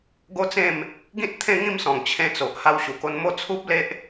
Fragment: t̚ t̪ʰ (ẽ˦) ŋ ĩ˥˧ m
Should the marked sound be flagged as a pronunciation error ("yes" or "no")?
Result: yes